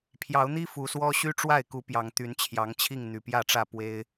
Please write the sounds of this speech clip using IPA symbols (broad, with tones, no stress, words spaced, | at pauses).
pʰjɑ˨˦ʊ̯n̪i˦ fu˨˩swɔ˦ ɕy˦ʈ͡ʂwa˥˨ɪ̯ku˨˦ pjɑ˨˩ŋ t̪y˨˦nt͡ɕʰjɑ˨˦ŋt͡ɕʰi˥˨ŋ n̪y˨˩pjä˥˨ʈ͡ʂä˥˨ pwe˦ɪ̯